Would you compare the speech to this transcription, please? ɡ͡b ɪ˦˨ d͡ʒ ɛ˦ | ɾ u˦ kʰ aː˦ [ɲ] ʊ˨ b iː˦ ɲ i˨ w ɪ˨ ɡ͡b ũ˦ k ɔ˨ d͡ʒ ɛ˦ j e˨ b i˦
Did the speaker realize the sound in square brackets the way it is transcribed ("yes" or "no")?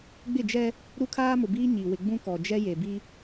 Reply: no